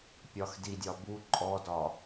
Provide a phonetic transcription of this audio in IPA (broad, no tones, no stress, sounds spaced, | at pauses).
pʲ ɒ x d i dʲ ɒ b u ǃʼ ɔ d ɒ